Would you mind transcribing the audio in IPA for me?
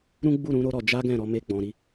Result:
ɾũ˦ɡ͡bu˦˨ɾũ˨˦ ɾo˦ɾɔ˧ d͡ʒa˦ ɡɛ̃˦˨ɾɔ˧ me˧ɡ͡bɔ̃˨ɾi˨˦

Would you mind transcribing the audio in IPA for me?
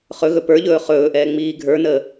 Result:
χɵɣɵ pə˞ʎɵː χɵːʔɛː ŋ͡miːɡʱə˞nəː

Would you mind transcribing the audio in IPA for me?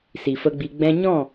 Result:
si˨fə˧ɡ͡bi˧ ɡ͡bɛ̃˧ɲɔ̃˦˨

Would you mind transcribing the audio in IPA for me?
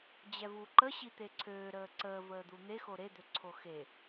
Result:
d͡ʑɛvuǃə ɕit̪eǀʰøːɾəː ǀəː vəːd̪un̪exo ɾed̪øǀʰo xe

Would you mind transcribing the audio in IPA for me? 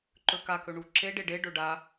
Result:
ǃɵka kɵɳuǁe ɖeɖe ɖɵɖa

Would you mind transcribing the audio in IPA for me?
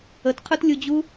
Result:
ətqʰøtlʲud͡ʑu

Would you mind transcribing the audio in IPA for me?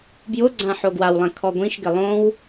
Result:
bjʊɡ͡ǀã ħoɡwawlˠɛ̃ kʰɔɡʷĩʃɡɪ lˠõw

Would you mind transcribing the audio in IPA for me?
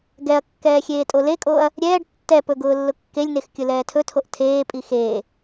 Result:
ɡɛɐ̯kːɛː xʲeːtʼolekʼoːɐ̯ | ɾʲɛːɖ tːɛpɵ ɡʊːlːʊkːelʲnex kʲʊlɛːtʰɵtʰoʔ tʰeːpʼi xeː

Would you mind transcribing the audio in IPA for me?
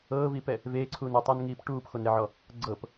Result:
ɤːviːpɛ | veːǀʰuːn utˤɛnŋiːp ʈuːpxonɾeʕɔ | ɡ͡ǀɤp

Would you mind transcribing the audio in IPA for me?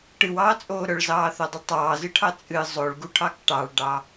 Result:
ʈɨwɑːt͡sʼoː ɾœɭzɑːθœdˤɨ tˤɑːzɨʈʰɑ t͡sʼɨ zˤoɭɡuʈʰɑk ʈɑɭɖɑ

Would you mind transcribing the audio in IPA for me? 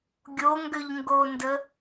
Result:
ɡʲoŋɡøʎŋɡondə

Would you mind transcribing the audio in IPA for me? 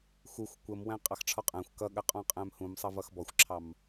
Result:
xuxʷ kʷəmwæ̃ qʼɑxʈ͡ʂʰɔqʼæ̃xʷ kʌɠə qʼɔ̃qʼæ̃mhũm sˤʌvʌxbɔxʷǁʰɑm

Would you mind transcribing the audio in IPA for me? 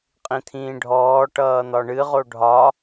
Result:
qʼĩt̪ʰĩːɖʱɔː ʈʌːn̪ɒɳɨʁo ɖʱɒ

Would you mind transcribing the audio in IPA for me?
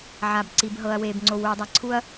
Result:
ʕa˩b ǀi˩bɦɤ˩ɐ̯weː˩b ŋ͡ǀo˨wuː˨dˤa˨ǀʰu˦ɐ̯

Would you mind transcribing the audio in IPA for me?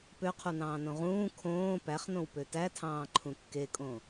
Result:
pøqʰunɑ̃ːnõ ʁũː kʰõː pæχnõw pøtætʰɑ̃ː ǃʰũkːekʼõ

